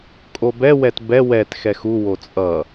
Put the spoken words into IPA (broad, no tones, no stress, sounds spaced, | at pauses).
kʼ o b ɛ w ɛ t b ɛ w ɛ t x ɛ x u w o t͡sʼ ʌ